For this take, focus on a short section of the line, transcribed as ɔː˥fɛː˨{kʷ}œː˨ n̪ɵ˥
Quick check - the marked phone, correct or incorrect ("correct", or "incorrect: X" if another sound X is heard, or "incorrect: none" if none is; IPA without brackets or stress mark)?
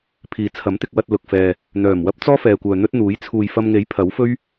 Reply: correct